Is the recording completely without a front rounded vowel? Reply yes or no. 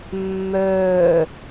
no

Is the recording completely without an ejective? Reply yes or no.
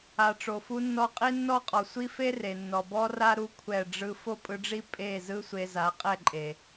no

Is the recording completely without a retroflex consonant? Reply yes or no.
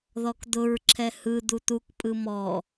yes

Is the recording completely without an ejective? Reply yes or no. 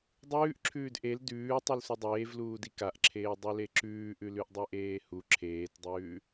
yes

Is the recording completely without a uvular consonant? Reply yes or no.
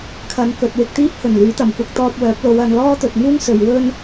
yes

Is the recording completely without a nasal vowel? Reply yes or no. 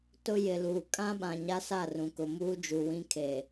no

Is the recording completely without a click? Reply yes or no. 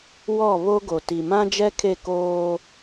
yes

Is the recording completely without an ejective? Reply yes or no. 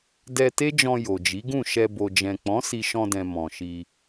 yes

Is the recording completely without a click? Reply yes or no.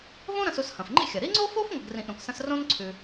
no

